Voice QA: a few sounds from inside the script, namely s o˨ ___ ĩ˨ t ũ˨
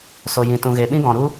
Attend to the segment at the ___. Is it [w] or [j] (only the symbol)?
j